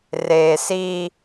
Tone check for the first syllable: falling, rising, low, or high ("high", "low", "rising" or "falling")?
low